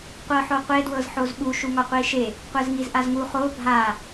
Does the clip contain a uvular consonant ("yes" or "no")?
yes